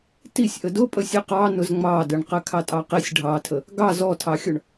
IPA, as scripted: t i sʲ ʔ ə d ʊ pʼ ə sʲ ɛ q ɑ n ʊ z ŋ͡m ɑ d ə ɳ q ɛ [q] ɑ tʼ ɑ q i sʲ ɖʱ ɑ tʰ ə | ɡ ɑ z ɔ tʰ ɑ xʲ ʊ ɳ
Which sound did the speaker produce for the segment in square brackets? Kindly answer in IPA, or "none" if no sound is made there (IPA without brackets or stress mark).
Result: kʰ